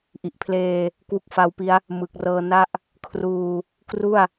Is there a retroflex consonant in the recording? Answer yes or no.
no